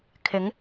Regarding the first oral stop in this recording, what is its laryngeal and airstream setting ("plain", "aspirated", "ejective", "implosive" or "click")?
aspirated